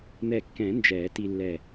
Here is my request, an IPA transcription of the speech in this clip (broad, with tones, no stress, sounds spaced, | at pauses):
n̪ ɛ˧˩ kː ɛ̃˨˩˦ n d͡ʒ ɛ˨˩˦ t i˧ lː ɛ˧˩